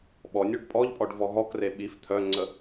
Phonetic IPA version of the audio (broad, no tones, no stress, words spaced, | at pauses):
ɓɔnʲoɖ pʼɔʎpʼɔɖvɔ ɦɔkre ɓif t̪ʰœŋ͡ǀə